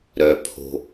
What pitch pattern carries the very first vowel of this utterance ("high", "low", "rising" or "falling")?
low